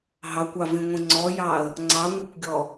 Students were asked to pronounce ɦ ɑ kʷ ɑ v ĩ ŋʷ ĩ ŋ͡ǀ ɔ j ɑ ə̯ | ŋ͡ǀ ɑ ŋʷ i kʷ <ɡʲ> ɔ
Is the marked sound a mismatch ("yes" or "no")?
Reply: no